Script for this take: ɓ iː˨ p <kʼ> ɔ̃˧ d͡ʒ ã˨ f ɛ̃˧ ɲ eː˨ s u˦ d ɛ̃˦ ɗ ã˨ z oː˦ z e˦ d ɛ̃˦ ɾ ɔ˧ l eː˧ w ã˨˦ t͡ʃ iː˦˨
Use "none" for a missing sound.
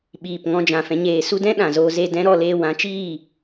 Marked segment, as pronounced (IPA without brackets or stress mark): ŋ